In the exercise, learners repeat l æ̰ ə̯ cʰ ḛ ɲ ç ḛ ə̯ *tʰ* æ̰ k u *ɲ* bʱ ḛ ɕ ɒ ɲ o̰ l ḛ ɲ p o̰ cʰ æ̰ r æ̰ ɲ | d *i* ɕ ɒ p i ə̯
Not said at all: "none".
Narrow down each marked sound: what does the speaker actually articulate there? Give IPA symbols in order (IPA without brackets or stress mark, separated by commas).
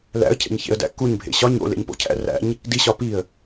d, ɲ, i